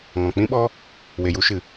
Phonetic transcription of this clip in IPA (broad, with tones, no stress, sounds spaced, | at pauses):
ŋ ɔ̃˨ k͡p ĩ˦ ɓ ɔ˦ | w e˨ j u˧ ʃ ɨ˨